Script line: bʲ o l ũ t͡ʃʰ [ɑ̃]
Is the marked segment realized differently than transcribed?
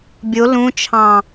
no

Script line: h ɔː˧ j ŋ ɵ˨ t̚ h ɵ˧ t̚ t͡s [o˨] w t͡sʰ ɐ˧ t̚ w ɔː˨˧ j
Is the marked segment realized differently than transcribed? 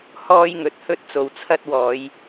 no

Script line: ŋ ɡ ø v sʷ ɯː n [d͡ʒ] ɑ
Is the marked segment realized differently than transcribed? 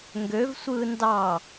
yes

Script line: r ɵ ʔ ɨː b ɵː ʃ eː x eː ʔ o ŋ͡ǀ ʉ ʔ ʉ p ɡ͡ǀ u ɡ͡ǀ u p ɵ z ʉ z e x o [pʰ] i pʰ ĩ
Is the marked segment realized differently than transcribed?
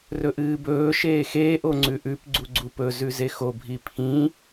yes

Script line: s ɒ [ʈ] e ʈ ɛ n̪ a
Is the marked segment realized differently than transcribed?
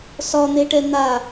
yes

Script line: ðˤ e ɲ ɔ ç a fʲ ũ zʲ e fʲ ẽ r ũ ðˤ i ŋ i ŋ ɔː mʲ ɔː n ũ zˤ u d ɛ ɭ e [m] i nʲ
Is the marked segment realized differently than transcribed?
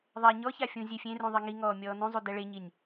yes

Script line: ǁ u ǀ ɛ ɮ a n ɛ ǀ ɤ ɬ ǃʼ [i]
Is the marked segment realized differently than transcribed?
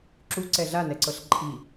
no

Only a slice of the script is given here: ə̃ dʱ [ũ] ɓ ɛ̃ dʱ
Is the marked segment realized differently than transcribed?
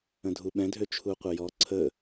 yes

